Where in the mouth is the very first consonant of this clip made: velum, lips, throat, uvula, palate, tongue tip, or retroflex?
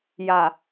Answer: palate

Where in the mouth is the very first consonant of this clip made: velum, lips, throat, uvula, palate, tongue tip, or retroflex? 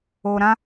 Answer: tongue tip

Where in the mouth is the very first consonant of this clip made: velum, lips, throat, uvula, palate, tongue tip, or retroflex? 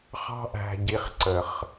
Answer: uvula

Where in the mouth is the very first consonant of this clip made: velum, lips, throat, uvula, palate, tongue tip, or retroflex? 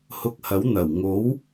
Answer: throat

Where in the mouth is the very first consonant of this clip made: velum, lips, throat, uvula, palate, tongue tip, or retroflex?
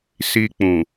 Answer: tongue tip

